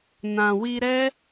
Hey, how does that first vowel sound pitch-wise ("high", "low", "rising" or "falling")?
low